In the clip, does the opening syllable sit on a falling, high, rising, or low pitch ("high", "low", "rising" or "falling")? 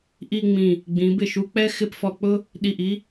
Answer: falling